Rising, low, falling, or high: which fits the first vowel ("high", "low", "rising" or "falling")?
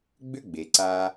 high